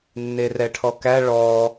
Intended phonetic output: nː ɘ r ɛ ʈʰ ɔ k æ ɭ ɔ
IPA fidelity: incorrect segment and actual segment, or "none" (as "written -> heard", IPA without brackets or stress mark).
ɘ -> e